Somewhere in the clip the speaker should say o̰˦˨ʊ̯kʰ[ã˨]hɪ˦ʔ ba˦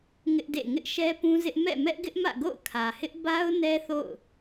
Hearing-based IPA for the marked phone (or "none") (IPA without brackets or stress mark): ä˨